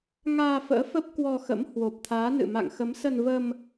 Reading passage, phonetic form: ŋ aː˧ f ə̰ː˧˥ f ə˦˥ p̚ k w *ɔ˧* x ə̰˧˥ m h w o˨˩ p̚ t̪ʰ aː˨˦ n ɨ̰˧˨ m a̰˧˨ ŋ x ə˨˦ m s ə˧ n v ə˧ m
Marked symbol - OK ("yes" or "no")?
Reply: yes